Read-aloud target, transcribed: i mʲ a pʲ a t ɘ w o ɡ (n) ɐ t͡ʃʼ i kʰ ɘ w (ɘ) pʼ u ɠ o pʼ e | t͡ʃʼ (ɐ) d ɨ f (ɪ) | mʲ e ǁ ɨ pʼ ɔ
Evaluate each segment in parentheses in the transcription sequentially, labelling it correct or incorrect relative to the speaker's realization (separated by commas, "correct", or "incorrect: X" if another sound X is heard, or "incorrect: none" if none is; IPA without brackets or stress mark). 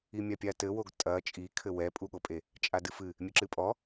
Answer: incorrect: tʼ, incorrect: ɛ, incorrect: a, incorrect: ɨ